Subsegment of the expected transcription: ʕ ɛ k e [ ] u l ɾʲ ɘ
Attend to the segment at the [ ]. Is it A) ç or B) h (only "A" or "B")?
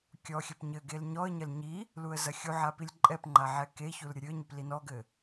A